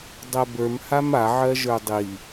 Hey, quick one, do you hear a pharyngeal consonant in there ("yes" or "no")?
yes